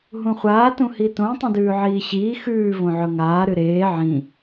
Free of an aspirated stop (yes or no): yes